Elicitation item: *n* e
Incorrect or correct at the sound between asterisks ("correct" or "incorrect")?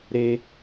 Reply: incorrect